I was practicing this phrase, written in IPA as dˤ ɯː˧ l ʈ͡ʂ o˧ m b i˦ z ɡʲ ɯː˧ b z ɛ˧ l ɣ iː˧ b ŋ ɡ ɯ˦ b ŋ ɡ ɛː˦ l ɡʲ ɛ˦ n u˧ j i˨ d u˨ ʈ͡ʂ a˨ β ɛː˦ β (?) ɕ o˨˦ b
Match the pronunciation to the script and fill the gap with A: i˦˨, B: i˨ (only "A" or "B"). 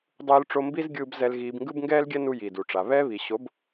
B